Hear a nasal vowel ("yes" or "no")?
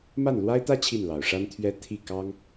no